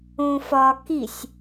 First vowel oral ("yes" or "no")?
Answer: no